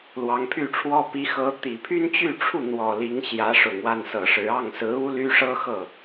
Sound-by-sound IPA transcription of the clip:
lwɑ˧˥ŋpʰy˥˩ʈ͡ʂʰwɔ˥ pi˧˥xɤ˧˥t̪i˨˩ pʰy˥nt͡ɕy˥˧ʈ͡ʂʰu˥˩ n̪wɔ˨˩ li˧˥ŋɕjä˧˥ ʂʊ˨˩ŋwa˥˩nsɤ˨˩ ʂɻ̩˧˥ ɑ˥˩ŋsɹ̩˧˥ u˥ly˥ʂɤ˥xɤ˥˩

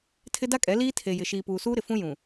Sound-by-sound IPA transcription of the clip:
tʰɪ˦da˦kʼɛ˨˦ liː˦tʰe˨jɪ˨ ʃiː˨puː˨suː˦ɾɪ˨ fũ˦jũ˨

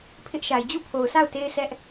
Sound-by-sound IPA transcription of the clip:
pʰɪ˦ʔʃa˨ɪ̯ d͡ʑu˦˨pʰo˨ʊ̯sʰa˦˨ʊ̯ te˦ɪ̯sɛ˦ʔ

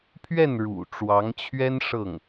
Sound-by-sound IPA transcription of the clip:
pʰɥɛ˥˩n ɻṵ˨˩ ʈ͡ʂwɑ˧˥ŋt͡ɕʰɥɛ˥n ʂɤ˥˩ŋ

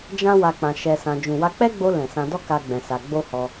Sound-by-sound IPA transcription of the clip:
d͡ʒã˦wa˧ k͡pã˧ʃɛ˧sã˧ d͡ʒũ˨wa˧k͡pɛ˦ɡ͡bo˧ lɛ̃˨sã˧ dɔ˦ka˧ ɡ͡bɛ̃˧sa˧ ɡ͡bo˦hɔ˧

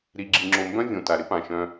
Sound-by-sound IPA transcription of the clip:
ɾi˨ɡ͡ǁi˨ŋ͡ǁo˨mbœ̃˦ vʲõ˨ta˨ɾɪ˦pã˨ ʃœ̃˦

